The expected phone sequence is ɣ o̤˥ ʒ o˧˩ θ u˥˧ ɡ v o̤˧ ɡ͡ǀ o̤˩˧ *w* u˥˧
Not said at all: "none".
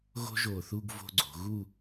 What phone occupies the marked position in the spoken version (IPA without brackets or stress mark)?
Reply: ɣ